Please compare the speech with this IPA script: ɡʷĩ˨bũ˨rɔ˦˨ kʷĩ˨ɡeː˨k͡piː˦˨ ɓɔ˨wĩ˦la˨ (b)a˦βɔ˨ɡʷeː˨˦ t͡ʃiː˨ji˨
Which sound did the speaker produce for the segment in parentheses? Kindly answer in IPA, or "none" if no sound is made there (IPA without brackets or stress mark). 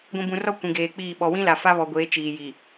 f